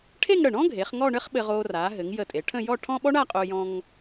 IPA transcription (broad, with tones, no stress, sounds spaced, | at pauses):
ʈʰ e˥˧ ŋ ɽ ə˧˩ ɳ ɔ̃˥ ɡʱ e˩˧ χ ŋ ɔ˥˧ ɳ ɘ˥ χ ɓ ɘ˧ ʁ o˧ r a˩˧ ɦ ɘ˩˧ ŋ j ə˧˩ tʼ e˩˧ ʈʰ ə̃˥˧ j ɔ˥˧ ʈʰ ɔ̃˥ ɓ ɔ˥ ɳ a˥˧ qʼ o˧ j ɔ̃˧ ŋ